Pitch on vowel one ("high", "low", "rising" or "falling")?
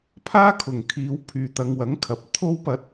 high